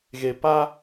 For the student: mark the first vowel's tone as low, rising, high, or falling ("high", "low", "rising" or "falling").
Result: low